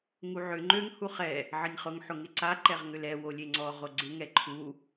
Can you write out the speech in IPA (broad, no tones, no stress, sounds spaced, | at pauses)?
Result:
ŋ u ʕ ʏ ŋ͡ǃ ø ŋ h u χ ɛ | ʕ ə nʲ χ ʊ ŋ ħ ʊ ŋ ɪ ǀ a ǃ ɛ ʁ ŋ ʏ l ɛ w o lʲ e ŋ͡ǀ ɔ ʁ o ɡ͡ǀ ɪ ŋ ɛ ǃʰ u